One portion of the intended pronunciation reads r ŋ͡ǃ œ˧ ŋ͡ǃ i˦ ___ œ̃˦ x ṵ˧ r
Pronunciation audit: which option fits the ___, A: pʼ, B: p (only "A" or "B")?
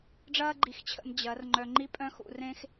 A